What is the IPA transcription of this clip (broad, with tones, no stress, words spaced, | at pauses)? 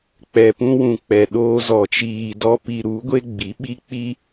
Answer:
k͡pɛ˨pũ˧wũ˨ k͡pɛ˨ɗoː˧zɔ˨ t͡ʃiː˨ dɔ˦pi˧ ɾu˨˦ ɡʷe˦ɡ͡bi˨˦ ɓi˦ k͡pi˦